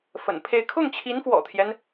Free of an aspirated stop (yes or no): no